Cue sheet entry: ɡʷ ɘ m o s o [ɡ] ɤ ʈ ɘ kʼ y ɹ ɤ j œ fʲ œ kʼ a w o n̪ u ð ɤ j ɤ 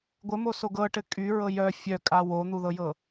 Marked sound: correct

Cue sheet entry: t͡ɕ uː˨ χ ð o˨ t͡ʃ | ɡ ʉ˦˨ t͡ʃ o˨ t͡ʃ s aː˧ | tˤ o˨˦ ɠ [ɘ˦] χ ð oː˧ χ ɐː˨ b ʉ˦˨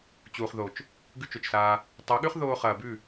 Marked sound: incorrect: ʉ˦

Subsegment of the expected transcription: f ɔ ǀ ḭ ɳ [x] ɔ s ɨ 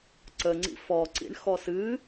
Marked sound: correct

